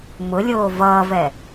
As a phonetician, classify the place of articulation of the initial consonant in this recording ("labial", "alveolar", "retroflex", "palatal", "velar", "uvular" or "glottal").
labial